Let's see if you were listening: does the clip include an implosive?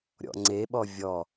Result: yes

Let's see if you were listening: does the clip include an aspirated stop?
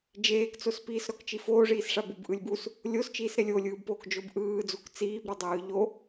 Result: no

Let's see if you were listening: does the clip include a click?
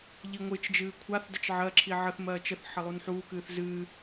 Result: yes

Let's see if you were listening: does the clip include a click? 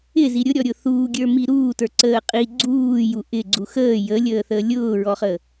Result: yes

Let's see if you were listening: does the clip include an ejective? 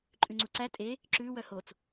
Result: yes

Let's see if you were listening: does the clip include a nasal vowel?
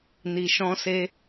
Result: yes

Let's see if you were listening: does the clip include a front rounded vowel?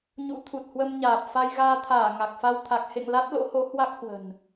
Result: no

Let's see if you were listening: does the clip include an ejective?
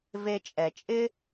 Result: yes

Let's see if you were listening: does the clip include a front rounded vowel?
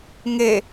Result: no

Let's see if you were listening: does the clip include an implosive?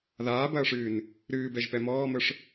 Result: no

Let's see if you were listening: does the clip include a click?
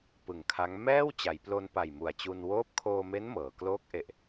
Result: no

